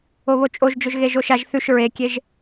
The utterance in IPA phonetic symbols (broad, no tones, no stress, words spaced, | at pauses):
oβot͡ʃʼoʒd͡ʒɵʒ ɣeʒoʃaʒ θʉʃ ɹekʲeʒ